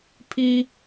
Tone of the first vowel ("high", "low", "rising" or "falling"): high